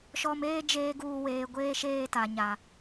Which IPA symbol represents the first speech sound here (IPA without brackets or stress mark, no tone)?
ʃ